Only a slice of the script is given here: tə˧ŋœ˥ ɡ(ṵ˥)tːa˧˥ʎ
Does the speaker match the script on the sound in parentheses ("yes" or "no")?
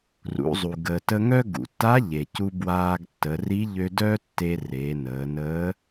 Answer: no